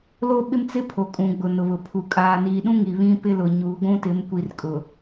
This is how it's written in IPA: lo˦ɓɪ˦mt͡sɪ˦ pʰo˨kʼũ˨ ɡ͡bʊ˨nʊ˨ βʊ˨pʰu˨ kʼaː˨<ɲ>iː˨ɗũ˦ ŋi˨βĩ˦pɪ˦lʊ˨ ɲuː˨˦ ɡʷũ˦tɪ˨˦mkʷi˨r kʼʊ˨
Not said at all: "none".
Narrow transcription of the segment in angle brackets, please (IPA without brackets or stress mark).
n